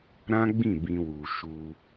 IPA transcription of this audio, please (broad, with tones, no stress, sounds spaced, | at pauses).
ɾ ã˦ ɡ͡b ĩ˦˨ b ĩ˧ w u˨ ʃ u˧